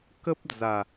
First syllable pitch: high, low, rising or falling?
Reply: high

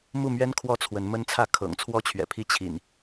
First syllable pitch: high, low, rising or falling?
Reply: falling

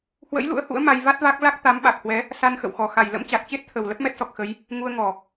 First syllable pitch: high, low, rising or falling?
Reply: rising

